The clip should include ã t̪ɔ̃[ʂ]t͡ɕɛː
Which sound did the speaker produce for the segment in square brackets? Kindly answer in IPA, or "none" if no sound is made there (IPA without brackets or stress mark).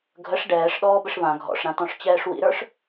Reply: ʂ